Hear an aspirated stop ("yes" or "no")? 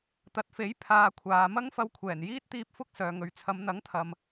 yes